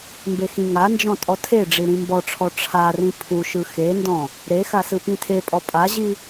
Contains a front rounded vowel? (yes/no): no